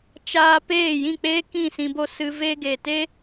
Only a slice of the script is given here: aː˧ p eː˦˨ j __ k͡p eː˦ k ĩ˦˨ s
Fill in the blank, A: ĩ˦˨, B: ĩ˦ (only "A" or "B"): A